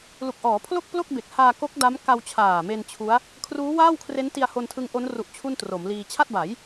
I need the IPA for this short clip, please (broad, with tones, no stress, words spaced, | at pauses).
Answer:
lu˨˩k̚ʔɔː˩˦pʰlo˥˩k̚plo˥˩k̚ be˨˩k̚haː˧ko˦˥k̚ da˦˥m ka˧wt͡ɕʰaː˨˩me˧n t͡ɕʰu˦˥a̯ | kʰruː˦˥waː˥˩wkʰre˦˥n ti˧a̯ho˧ntʰɯ˦˥ŋʔo˦˥n ru˦˥ʔt͡ɕʰu˥˩ntro˩˦mliː˧ t͡ɕʰa˥˩t̚ba˩˦j